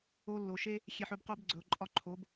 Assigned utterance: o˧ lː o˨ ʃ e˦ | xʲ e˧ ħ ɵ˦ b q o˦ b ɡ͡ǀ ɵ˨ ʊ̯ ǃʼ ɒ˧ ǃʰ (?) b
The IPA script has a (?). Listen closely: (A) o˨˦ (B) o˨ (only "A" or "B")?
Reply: A